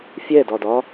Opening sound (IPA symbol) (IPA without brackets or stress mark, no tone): fʲ